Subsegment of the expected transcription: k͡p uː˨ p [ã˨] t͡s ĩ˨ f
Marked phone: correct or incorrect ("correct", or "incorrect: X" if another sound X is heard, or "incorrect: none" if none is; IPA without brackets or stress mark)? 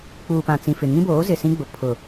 correct